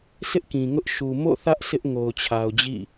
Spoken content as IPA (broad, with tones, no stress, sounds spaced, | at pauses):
sʰ ɪ˦ ʔ k ĩ˨ ŋ ʊ˦ ʔ ʃ u˨ m o̰˦˨ θ ä˦ ʔ sʰ ɪ˦ ʔ ŋ o˨ ʊ̯ t͡ɕʰ a˨ ʊ̯ d͡ʑ ḭ˦˨